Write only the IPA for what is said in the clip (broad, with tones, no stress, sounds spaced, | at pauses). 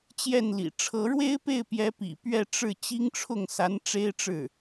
t͡ɕ j ɛ˥˩ n l ḭ˨˩ ʈ͡ʂʰ ɤ˧˥ ɻ w e˥ ɪ̯ p e˥˩ ɪ̯ p j ɛ˧˥ p ḭ˨˩ p ɥ ɛ˥˧ ʈ͡ʂ ɻ̩˥˩ t͡ɕ i˥ ŋ ʈ͡ʂʰ ʊ˥˩ ŋ s a˧˥ n ʈ͡ʂ e˥ ɪ̯ ʈ͡ʂ ɻ̩˥˩